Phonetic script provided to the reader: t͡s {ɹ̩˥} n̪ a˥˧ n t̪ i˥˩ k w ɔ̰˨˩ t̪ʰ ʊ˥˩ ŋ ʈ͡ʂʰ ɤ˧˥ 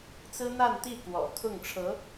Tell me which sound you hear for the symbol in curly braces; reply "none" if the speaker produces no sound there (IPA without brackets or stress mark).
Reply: ɹ̩˥